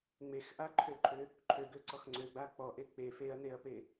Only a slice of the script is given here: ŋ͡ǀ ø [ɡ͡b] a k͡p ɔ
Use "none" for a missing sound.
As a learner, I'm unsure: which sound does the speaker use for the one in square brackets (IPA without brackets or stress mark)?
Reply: ɡ͡b